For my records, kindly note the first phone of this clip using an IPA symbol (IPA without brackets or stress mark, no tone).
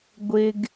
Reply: ɡʷ